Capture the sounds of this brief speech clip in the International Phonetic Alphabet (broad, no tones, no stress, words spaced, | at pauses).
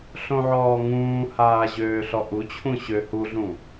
ɬõʕɔːŋũːhaː ʑøːɬɔʔut͡ɕʰũ ɕø huɮũ